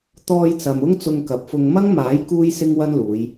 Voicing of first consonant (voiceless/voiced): voiceless